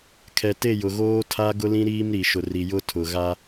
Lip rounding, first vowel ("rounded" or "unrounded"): unrounded